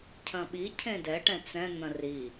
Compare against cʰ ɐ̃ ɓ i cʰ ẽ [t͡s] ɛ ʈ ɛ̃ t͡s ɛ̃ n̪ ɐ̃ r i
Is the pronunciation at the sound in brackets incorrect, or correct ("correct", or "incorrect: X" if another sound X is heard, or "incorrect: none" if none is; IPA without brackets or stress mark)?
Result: incorrect: d